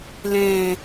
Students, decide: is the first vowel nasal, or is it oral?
nasal